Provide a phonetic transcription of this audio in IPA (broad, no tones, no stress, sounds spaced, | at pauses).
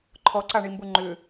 ǃʰ ɔ ǀ a ɳ i m b u ŋ͡ǃ ʏ